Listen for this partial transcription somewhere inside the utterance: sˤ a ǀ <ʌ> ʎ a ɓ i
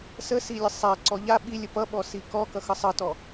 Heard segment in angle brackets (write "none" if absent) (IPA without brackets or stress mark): ɔ